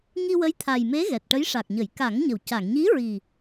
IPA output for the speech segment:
ŋi˧wə˧˥jt̪ʰa˨˩jme˧˥ ɣɛ˨˩t̚ʈə˧˥jʂa˨˩k̚ɲə˨˩˦j ka˨˩˦ŋɲə˨˩˨wca˨˩˨ŋ ɲi˧˥ɹi˨˩

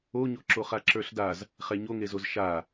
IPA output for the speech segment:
oɲoǁo χaǁə˞ɬdaz | χɛɲoŋezoz ʃa

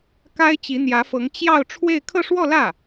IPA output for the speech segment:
ka˥ɪ̯t͡ɕi˧˥n̪jä˧˥fɤ˧˥ŋ t͡ɕjɑ˥˧ʊ̯ ʈ͡ʂʰwe˥˧ɪ̯ kʰɤ˥˧ʂwɔ˥˧lä˥˩

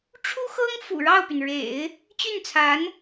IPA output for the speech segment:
ʈ͡ʂʰu˥xɤ˥ŋfṵ˨˩ ɻɑ˥˩ʊ̯py˩nɻḛ˨˩˦ɪ̯ | t͡ɕy˥˩nt͡sʰa˧˥n

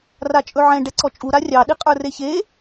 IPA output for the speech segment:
rat͡ʃʼɵʕɛ̃ ɖɛǀɔt͡ʃʼu ɾarʲɑ ɗiqʼə˞reçe

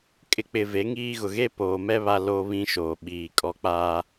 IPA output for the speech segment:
kʼɪ˨k͡pɪ˨ ve˨˦ŋiː˦ɣʊ˨ ɣe˦poː˨mɛ˦ βa˦ lo˦βĩ˦ ʃoː˨ɓiː˨kʼɔ˦ k͡paː˦

